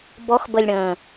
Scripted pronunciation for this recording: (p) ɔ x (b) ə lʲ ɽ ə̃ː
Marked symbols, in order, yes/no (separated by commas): no, yes